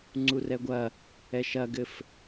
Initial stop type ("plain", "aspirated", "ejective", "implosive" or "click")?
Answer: click